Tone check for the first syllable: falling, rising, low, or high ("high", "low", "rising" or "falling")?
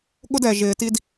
high